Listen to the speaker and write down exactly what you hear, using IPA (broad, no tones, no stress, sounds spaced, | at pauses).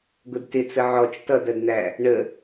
ɡ ʊ d t ɪ t͡s ə ʕ ɔ t͡ʃ t ʌ d ɜ d n̪ æ | ɳ ə